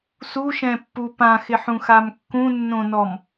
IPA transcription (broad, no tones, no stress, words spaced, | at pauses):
suʃɛ̃pːu pãxɪħũxam kːũnːõnɔm